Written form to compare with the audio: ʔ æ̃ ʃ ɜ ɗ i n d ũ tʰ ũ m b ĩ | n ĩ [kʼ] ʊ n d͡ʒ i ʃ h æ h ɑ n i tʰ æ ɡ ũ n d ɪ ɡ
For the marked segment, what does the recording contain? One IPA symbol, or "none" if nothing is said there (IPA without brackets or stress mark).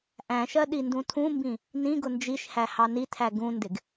ɡ